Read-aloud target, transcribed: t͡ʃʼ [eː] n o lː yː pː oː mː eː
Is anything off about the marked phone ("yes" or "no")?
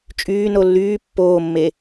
yes